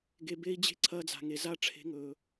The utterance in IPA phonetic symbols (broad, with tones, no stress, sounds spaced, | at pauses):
ɡ e˨ b e˧ i̯ d͡ʑ e̤˦ ǀʰ ɐː˧ d͡z a̤˨ ŋ e˨ z a˦˨ ʈ͡ʂʰ e̤˦ ŋ ɵː˧